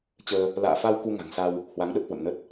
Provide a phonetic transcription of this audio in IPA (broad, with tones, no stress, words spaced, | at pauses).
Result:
t͡ɕəː˧ | la̰ː˧˨fa˧w ku˧ŋa̤˨˩ŋsa˧w | hwa˨˦ŋɗə˦˥p̚hwə̰˧˨mnə˦˥t̚